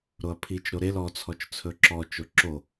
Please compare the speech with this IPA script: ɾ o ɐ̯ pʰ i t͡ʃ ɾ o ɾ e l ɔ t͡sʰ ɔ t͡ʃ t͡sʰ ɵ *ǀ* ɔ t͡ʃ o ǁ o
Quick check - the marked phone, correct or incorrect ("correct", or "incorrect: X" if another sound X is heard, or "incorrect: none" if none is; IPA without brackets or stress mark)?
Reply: incorrect: ǁ